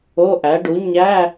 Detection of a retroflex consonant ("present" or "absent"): present